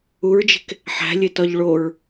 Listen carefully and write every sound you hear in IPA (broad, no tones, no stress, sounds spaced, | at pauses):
u ɹ d͡ʒ e̤ k | ħ æ̤ lʲ e t ɒ ʎ ɭ o ɹ